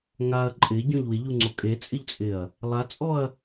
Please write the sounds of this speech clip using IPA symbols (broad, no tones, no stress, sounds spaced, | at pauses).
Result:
ŋ a ɐ̯ ǃʼ ɪ ɟ ɔ̃ ʎ w ɪ ʎ u ŋ͡ǀ o kʼ e t͡sʼ ɪ ʎ t͡sʼ ɪ ɐ̯ | lˠ a t͡sʼ ɔ ɐ̯